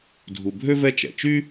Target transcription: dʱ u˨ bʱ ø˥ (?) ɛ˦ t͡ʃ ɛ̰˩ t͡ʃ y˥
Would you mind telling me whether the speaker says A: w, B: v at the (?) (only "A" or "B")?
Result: B